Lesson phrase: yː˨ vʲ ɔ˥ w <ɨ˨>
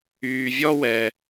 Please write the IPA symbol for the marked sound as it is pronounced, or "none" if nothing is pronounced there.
ɛ˨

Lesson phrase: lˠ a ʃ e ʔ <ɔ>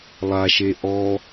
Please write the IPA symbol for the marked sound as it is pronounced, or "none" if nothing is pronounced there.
ɔ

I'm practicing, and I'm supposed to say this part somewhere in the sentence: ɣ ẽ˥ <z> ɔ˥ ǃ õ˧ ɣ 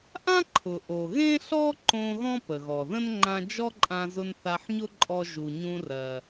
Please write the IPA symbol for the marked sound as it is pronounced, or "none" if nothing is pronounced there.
ɬ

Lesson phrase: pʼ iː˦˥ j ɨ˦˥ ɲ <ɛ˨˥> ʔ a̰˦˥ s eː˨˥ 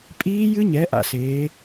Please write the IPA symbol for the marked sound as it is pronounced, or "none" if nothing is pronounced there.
ɛ˨˥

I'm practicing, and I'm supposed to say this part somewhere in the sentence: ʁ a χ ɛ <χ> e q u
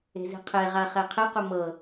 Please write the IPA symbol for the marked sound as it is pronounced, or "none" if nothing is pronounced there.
qʰ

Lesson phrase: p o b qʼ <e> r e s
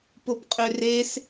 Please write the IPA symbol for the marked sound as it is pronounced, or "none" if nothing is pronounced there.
ø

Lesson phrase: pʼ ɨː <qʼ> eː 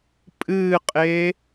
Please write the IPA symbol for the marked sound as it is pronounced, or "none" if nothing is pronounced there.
qʼ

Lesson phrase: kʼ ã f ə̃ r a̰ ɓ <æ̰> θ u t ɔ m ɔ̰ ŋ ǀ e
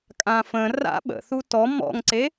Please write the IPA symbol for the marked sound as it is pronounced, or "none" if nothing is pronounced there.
ə̰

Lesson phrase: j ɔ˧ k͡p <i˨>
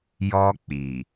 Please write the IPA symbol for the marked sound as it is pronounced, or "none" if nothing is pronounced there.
i˨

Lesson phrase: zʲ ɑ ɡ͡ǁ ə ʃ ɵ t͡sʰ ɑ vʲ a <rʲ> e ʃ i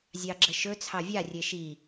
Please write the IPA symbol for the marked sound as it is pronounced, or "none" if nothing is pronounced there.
rʲ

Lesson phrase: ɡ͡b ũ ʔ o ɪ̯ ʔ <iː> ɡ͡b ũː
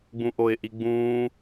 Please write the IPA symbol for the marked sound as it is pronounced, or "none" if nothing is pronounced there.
i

